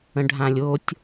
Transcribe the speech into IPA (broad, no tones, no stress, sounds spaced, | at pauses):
ə̃ ɖʱ ã lʲ o tʲ